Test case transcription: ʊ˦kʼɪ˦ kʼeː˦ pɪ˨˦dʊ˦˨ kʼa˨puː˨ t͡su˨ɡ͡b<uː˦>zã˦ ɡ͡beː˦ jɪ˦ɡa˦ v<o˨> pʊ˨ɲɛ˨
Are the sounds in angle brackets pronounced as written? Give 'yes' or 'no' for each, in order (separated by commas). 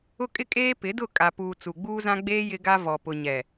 yes, no